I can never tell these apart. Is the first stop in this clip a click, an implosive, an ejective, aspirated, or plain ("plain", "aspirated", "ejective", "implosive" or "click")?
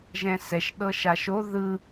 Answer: implosive